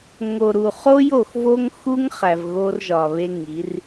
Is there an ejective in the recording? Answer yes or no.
no